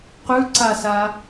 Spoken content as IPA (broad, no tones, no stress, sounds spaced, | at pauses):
q ʉ ǀ a s a